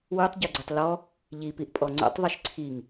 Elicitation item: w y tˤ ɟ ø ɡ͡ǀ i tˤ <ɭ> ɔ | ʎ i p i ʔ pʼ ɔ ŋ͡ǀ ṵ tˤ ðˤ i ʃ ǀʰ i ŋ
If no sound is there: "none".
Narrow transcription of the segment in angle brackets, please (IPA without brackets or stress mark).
l